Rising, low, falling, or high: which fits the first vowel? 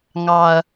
low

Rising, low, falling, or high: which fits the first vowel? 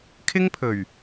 high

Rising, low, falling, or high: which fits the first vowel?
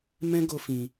high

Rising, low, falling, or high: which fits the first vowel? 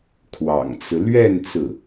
low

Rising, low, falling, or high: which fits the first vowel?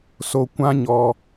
high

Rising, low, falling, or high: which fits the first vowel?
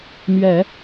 low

